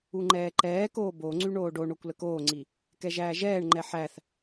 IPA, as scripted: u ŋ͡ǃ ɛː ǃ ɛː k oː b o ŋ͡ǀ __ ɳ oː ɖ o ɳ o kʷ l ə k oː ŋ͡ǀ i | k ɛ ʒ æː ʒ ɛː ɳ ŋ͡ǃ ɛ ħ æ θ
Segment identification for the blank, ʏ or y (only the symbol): y